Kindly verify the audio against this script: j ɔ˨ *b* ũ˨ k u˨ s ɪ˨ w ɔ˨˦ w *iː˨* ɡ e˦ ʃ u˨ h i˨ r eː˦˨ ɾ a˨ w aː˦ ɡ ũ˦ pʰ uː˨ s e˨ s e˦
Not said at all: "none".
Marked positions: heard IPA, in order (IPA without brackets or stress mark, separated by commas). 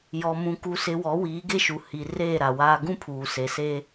m, iː˨˦